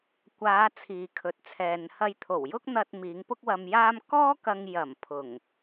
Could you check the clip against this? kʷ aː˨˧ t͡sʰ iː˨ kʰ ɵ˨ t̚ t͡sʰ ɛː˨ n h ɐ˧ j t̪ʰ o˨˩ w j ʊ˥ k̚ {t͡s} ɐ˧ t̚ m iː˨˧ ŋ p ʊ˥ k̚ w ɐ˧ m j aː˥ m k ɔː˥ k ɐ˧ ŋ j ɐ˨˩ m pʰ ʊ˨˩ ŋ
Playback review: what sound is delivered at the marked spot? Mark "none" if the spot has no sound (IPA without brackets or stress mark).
n̪